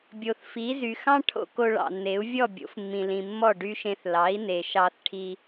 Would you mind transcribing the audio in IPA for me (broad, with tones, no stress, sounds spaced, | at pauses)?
bʲ o˩ θ f i˩˥ z y˩ x ɑ̃˥ ʈʰ o̰˧ k o˧ ɭ ɑ̰˩ nː e˩˥ u̯ vʲ ɔ˥˩ bʲ o̰˩˥ f mː ĩ˩ l ĩ˩ mː ɔ˥˩ ɖ y˥ ʃ ẽ˧ θ l ɑ˩˥ i̯ n e˩ ʃ ɑ˥ θ ʈʰ i˥